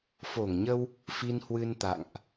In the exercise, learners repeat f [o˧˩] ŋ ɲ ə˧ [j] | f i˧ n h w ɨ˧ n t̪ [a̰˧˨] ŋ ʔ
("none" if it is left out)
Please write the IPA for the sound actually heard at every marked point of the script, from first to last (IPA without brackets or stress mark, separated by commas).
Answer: o˧˩, w, a̰˧˨